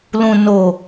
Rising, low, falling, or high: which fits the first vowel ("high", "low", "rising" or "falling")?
low